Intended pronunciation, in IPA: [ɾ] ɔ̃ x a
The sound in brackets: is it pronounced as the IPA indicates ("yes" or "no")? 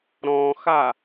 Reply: yes